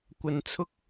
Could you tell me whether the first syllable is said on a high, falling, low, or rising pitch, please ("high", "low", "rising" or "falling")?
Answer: low